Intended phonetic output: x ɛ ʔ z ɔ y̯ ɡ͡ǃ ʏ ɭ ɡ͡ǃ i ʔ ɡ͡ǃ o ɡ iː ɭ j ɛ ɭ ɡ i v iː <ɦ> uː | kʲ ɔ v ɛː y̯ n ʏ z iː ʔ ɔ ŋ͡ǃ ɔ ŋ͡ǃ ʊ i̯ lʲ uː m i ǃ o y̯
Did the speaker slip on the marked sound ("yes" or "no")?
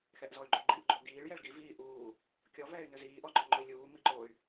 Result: yes